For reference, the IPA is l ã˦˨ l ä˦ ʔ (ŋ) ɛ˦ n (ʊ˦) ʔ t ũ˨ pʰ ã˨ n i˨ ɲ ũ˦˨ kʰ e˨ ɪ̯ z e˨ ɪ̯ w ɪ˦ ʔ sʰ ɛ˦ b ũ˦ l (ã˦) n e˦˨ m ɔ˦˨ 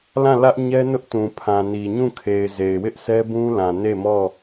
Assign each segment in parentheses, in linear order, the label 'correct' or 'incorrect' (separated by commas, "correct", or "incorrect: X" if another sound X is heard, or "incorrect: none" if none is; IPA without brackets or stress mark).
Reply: incorrect: ɲ, correct, incorrect: ã˨